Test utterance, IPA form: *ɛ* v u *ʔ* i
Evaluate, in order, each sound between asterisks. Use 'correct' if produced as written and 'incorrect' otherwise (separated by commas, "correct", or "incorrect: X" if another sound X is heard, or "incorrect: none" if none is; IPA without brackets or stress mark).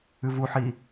incorrect: ɨ, incorrect: ħ